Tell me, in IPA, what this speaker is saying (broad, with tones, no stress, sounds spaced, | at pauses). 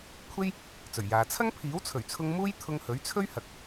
kʷʰ e˥ j | t͡s ɵ˨˩ ɥ j aː˨ t͡sʰ ɐ˥ ŋ pʰ iː˨˥ w t͡sʰ ɵ˨˩ ɥ t͡sʰ ʊ˧ ŋ m uː˥ j t̪ʰ ʊ˧ ŋ h ɵ˨˥ ɥ t͡sʰ ɵ˥ ɥ h ɐ˨ k̚